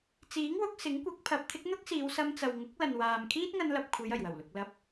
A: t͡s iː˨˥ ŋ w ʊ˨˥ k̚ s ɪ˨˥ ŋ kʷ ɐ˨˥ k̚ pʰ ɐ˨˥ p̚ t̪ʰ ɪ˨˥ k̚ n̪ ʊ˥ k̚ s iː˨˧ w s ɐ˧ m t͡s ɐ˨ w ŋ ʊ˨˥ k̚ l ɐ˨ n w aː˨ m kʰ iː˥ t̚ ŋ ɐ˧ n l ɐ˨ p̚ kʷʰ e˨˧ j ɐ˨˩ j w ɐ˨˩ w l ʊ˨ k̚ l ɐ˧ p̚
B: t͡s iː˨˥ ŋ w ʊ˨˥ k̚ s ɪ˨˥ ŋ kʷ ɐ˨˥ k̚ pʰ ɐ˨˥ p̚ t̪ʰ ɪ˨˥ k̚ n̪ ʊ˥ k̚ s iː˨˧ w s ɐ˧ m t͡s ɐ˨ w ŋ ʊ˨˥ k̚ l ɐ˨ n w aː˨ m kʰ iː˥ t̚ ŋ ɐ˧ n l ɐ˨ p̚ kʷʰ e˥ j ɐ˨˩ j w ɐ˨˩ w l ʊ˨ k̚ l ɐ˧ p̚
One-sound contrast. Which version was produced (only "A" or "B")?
A